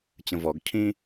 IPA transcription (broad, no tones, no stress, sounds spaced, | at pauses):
t͡ɕ ə̃ v ɔ ɡ cʰ ĩ